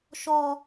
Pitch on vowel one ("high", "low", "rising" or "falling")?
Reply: high